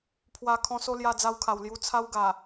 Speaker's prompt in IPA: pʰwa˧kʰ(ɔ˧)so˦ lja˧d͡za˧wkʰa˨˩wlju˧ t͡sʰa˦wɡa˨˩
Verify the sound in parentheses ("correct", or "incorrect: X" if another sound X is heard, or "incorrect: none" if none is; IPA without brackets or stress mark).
incorrect: ɔ̃˧